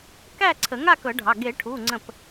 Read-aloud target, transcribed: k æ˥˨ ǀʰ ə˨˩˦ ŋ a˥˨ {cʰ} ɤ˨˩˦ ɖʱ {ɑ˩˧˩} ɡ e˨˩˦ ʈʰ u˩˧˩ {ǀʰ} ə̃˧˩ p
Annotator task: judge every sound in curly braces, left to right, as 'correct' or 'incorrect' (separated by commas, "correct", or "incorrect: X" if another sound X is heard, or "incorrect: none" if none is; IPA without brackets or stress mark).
incorrect: k, correct, incorrect: ŋ͡ǀ